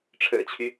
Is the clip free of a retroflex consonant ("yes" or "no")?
no